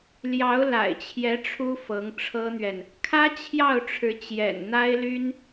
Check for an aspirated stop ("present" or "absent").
present